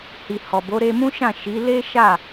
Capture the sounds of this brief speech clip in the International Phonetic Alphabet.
h i˨ h ɔ˨ b o˨˦ ɾ e˧ m ũ˦ ʃ ã˦˨ ʃ i˨˦ l e˦ ʃ a˦˨

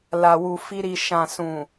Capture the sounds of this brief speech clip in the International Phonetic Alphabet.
l a˨ w u˨ f i˧ ɾ i˨ ʃ ã˨ s ũ˨

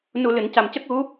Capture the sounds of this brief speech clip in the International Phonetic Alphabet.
n u˨˩ l ɨ˨˩˨ n c a˨˩ m c ə˦˥ k̚ ɣ u˧˥

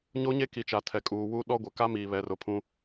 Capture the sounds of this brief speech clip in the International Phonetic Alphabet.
ɲ o˦ ɲ e˦ k i˨ t͡ʃ a˨ tʰ ɛ˨ kʼ uː˨ w u˦ ɗ ɔ˦ ɡʷ ɛ˨ k a˦ m iː˨ β ɛ˨ r ʊ˨ pʰ ũ˦

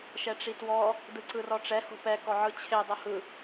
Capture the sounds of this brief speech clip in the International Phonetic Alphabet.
ʃ ɛ ʈ͡ʂ i t w ɔ | d ɯ ǀ ɯ r ɔ ʈ͡ʂ ɛ h o̤ p ɛ k ɔ ʕ ɯ t͡ɕʰ e dˤ o h ɯ

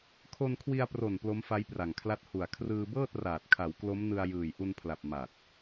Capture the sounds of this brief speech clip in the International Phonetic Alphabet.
kʰ o˧ n kʰ w i˧ a̯ p r o˨˩ n p l o˦˥ m f a˦˥ j p r a˨˩ ŋ kʰ l a˦˥ t̚ h u˨˩ a̯ kʰ r ɯː˧ b ɤː˥˩ t̚ r aː˨˩ t̚ kʰ a˩˦ w k l o˦˥ m n ɯ˧ a̯ j ɯː˨˩ j ʔ u˧ n pʰ l a˨˩ p̚ m a˨˩ t̚

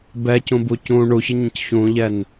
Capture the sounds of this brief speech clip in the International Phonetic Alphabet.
b ɛ c ũ b u c ũ ɳ u ç ə ɲ ə̃ c ç ũ ʎ ɛ n

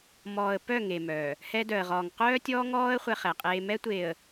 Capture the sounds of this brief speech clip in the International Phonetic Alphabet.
m ɔː˨ ə̯ p œ˦˨ ŋ e˨ m œː˨ | h ɛ˦ d œ˨ ə̯ ʁ ɔː˨ ŋ q œː˦ tʲ ɔː˦ ŋ ɔː˦ ə̯ χʷ ɛ˦ χ ɛ˨ qʼ eː˦ m ɛ˦ tʷ eː˨ ə̯

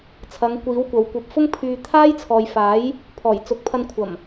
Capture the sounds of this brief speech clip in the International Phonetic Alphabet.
t͡sʰ ɐ˨˧ ŋ kʷ iː˨˥ w kʷ ɐ˨˧ w kʷ ɐ˨ p̚ f ʊ˥ ŋ pʰ yː˧ t̪ʰ aː˥ j t͡sʰ ɔː˨ j f aː˨˥ j | pʰ ɔː˨˩ j t͡s ʊ˨˥ k̚ pʰ ɐ˧ n kʷʰ ɐ˨˩ m

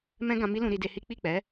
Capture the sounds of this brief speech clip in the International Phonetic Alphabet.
m ɛ̃˦ ɡ ã˧ m i˦ l ũ˧ ɾ i˧ d e˧ h i˦ k͡p i˦˨ k͡p ɛ˨˦

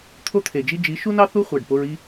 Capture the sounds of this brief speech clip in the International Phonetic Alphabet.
t̪ʰ o˦ t̪ʰ e˨ d͡ʒ i˦ d͡ʒ i˨˦ ʃ u˦ n ɑ˦ θ u˦ χʷ æ˨ ɖ p o˧ ɹ i˦

